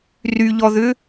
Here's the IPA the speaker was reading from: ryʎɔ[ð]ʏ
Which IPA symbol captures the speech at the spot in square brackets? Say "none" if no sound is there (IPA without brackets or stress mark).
ð